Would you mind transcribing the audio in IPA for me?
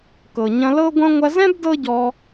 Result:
k ɤ˨ ɲ ɐ̃˧ l ɤ˦ ɡʷ ɐ̃˦ ŋʷ ɐ˧ z ɛ̃˦ b d ɤ˦ ɟ ɔ˧

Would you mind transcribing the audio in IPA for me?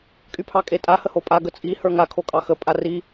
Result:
kʼ y pʰ ɑ kʼ e tʼ a h ə h o pʼ a ɡ ə t͡sʼ i h ə˞ ŋ a kʰ o kʼ ɑ x ə pʼ a r i

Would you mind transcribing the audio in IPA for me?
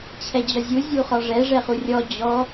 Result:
t͡ɕʰ ɛ d͡ʑ ɒ zʲ u zʲ u χ ɒ ʐ ɛ ʐ ɛ χ u rʲ ɔ d͡ʑ ɔ

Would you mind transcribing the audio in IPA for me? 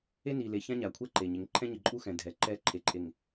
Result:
e˦ n i˨ l e˨ ç ã˦ ɲ a˨ kʷʰ ɛ˦ ǃ e˨ ɲ ɪ˨˦ ŋ ǃʰ ɛ̃˦ ɲ ɪ˨ ǃʼ u˦ x ɛ̃˨ dʱ ɛ˨˦ ǃ ɛ˦ ǃʰ e˨ ǃʼ e˨ ŋ

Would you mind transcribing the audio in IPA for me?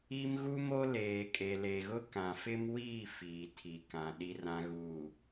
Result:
i˦ m ɣ u˦ m o˦ l eː˨ kʼ e˨ l e˨ ɣ ʊ˦ k ã˨ f ɪ˦ m w iː˦˨ f iː˨ tʰ i˨ k ã˨ ɗ i˨ r ã˨ ɣ uː˨

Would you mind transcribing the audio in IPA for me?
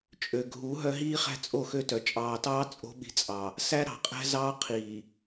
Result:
t͡ʃʼ ø˨ ɡʱ u˨˦ ɦ œ˦ ɦ iː˦ χ æ̤˦ t͡sʼ o˦˨ x ø˦ t œ˨ t͡ʃʼ ɑː˨ t ɑː˦ t͡sʼ o̤˦ ɓ i̤˨ t͡sʼ ɑ˨ | s æ˦ ɾ ɑ̤˨ qʼ æ̤˦ z ɑː˦ qʰ iː˨

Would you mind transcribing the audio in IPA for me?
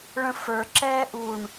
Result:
ɭ ə̃ f ə˞ ǁ ɛː ʔ u ɳ

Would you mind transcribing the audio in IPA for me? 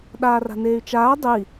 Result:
ɗ aː r a̤ n eː y̯ t͡ʃ aː dˤ ɨ i̯

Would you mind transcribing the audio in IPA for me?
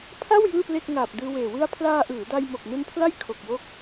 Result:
pʰ a˥˩ w j ɯː˥˩ p l e˥˩ k̚ ŋ aː˨˩ p̚ d ɯː˧ w eː˨˩ w ɯ˧ a̯ pʰ l aː˧ ʔ ɯː˩˦ d a˧ j m o˨˩ k̚ n u˧ n pʰ l a˥˩ j kʰ o˨˩ k̚ w o˥˩ k̚

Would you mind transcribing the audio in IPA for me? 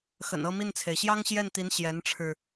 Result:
x ə̰˨˩ n ɤ˥˧ m i˥˩ n t͡sʰ e˩ ɪ̯ ɕ j ɑ˥ ŋ ɕ j ɛ˥˩ n t̪ i˧˥ n ɕ j ɛ˧˥ n ʈ͡ʂʰ ɻ̩˧

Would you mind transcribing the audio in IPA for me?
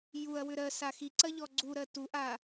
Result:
j u ɐ̯ w ʏ ɾ ɜ s a x i ǀ ɐ ʎ ɔ ɡ͡ǀ u ɾ ɜ t u ʔ a

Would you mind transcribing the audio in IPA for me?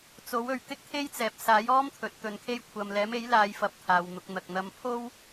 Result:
t͡s o˨˥ w ɵ˨ ɥ t̪ ɪ˥ k̚ t̪ʰ e˥ j t͡s ɛː˨ p̚ s aː˨˥ j ɔː˥ m t̪ʰ ɵ˨˥ t̚ t̪ ɵ˨˧ n kʰ e˥ j kʷʰ ɐ˨ m l ɛː˨˥ m e˨˥ j l aː˨˧ j f ɐ˧ p̚ t̪ʰ aː˨ w n̪ ʊ˧ k̚ n̪ ɐ˨ k̚ n̪ ɐ˨˧ m pʰ o˥ w

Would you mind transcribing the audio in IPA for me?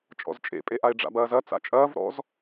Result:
t͡ʃʼ ɔ̰ z t͡ʃʼ ḛ pʼ e ʔ a e̯ ɖ͡ʐ a̰ b ɐː z ɐ t͡s a̰ t͡ʃʼ ɐː v ɾ ɔ̰ z

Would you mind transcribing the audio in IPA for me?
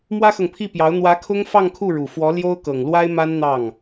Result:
m w ä˥ x ɤ˨ ŋ pʰ i˥˩ p j ɑ˧˥ ʊ̯ n̪ w ä˧˥ kʰ ʊ˥ ŋ f ɑ˥˧ ŋ kʰ u˥˩ ɻ u˨˩ f w ɔ˧˥ l j o˥ ʊ̯ k ɤ˨˩ ŋ l w a˥ ɪ̯ m a˥ n n̪ ɑ˥˩ ŋ

